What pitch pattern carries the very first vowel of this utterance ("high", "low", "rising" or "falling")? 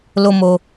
high